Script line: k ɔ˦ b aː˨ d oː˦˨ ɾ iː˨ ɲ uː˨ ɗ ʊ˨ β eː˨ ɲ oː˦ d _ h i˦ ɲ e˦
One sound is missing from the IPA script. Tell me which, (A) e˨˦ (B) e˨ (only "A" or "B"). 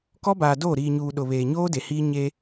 B